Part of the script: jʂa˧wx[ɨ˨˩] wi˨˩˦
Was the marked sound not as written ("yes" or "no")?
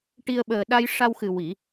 no